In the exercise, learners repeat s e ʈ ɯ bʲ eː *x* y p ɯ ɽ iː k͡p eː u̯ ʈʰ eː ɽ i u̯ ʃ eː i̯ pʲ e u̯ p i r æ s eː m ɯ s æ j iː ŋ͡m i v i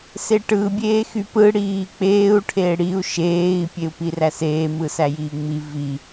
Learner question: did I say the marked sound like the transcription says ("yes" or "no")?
yes